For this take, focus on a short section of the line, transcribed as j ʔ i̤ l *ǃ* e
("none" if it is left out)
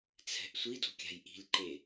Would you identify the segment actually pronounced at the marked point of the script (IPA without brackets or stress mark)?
ǃ